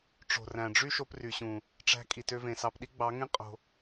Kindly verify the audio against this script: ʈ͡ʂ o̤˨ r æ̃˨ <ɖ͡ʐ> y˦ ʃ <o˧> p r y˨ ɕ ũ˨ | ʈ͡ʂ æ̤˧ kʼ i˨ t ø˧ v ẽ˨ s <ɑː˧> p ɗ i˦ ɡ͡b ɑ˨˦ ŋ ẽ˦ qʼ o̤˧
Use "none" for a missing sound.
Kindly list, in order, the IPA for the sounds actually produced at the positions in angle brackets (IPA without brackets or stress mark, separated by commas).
ɖ͡ʐ, o˧, ɑ˧